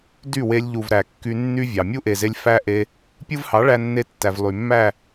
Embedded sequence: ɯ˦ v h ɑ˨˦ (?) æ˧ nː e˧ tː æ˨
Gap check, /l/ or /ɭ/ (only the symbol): ɭ